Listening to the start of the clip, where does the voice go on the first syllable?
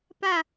falling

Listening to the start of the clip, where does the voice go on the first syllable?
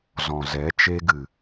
low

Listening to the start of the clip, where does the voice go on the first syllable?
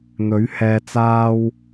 rising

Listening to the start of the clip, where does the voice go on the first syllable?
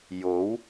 rising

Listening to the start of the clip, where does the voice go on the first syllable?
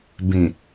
low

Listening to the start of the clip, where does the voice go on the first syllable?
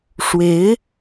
rising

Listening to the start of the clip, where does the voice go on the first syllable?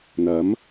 rising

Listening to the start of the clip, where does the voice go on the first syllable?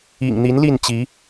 low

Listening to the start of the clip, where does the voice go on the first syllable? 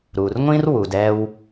low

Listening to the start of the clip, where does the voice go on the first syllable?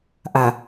low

